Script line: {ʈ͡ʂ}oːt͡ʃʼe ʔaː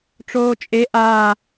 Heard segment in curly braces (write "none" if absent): ʈ͡ʂ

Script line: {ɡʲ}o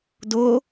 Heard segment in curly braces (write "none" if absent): d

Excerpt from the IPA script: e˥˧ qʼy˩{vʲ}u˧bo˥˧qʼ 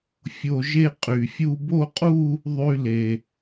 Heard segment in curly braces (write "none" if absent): fʲ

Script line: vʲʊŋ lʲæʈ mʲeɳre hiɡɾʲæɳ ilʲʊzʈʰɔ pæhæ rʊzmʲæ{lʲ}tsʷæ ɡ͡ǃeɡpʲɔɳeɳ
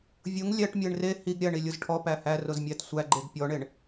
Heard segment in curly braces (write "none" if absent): none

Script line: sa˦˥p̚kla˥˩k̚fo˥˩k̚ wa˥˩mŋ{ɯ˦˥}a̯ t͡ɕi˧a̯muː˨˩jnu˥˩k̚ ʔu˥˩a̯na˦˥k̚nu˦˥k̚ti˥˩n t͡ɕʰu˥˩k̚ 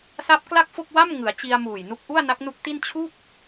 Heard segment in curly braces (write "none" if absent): ɯ˩˦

